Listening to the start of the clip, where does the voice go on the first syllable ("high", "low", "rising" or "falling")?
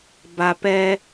low